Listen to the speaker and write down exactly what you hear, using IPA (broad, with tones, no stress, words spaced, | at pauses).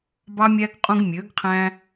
bɑ˥mʲæ˥ɡ qʼũ˥ɡmʲø˧˥ɡqʰæ̃˥